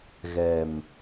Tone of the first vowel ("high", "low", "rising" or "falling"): low